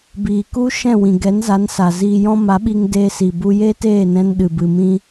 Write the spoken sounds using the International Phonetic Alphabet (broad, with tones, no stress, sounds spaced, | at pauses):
b iː˨ k u˦ ʃ ɛ̃˦˨ w ĩ˨ ɡ ɛ˨˦ n z a˨˦ n s a˨ z iː˧ j ɔ̃˦ m a˨˦ ɓ i˧ ŋ d eː˧ s i˨ b u˧ j e˦ t eː˦˨ n ɛ̃˧ n ɗ ɨ˨ b ɨ˨ m ĩ˧